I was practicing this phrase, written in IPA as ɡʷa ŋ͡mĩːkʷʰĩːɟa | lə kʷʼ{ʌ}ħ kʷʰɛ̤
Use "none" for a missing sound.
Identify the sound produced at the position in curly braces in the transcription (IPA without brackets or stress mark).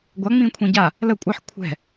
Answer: ʌ